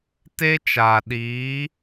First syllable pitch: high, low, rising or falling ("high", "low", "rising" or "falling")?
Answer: high